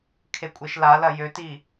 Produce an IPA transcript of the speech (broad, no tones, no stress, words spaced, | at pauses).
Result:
kʰekʷʼeʃlalɐ jøti